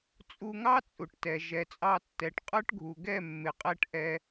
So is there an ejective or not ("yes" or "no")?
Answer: yes